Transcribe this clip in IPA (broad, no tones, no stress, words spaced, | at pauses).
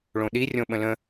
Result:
ɭõɗi rʲõɓə̃lə̃